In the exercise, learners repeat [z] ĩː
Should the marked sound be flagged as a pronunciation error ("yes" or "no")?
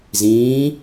no